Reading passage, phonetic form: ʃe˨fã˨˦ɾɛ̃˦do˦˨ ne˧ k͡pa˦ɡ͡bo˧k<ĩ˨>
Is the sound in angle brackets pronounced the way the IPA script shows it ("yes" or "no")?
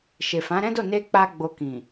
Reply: yes